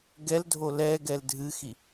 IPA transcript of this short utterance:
ɡɛldʱo lɛɡɛl dʱɨxi

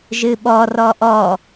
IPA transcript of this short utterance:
ʒɨɓɔ rɔʔɔ

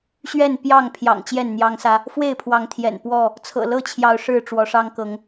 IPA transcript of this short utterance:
ɕɥɛ˥˨n pjɑ˥˨ŋ pʰjɑ̰˨˩ŋ t͡ɕjɛ˥˨nn̪jɑ˦ŋsä˦ | fwe˥˨ɪ̯pʰwɑ˨˦ŋt̪ʰjɛ̰˨˩n pwɔ˥˨ | t͡sʰɤ̰˨˩lɤ˥˨t͡ɕʰjɑ˨˦ʊ̯ ʂɻ̩˥˨ʈ͡ʂwɔ˨˦ʂɑ˦ŋ kɤ˨˦ŋ

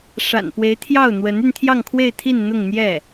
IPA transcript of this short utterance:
ʂa̰˨˩npwe˧˥ɪ̯t̪ʰjɑ˥˩ʊ̯ n̪wə˧˥ny˧nt̪ʰjɑ˥˧ŋ kʰwe˥˧ɪ̯t̪ʰi˥˧n n̪ʊ˥˧ŋn̪jɛ˥˩

